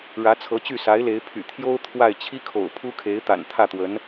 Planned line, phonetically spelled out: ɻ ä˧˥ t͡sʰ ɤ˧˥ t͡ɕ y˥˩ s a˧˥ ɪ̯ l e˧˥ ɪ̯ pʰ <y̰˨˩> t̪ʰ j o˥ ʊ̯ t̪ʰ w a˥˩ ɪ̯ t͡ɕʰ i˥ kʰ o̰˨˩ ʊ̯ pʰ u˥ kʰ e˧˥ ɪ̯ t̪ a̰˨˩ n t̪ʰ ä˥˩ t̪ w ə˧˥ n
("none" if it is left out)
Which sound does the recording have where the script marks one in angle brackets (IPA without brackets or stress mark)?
y̰˨˩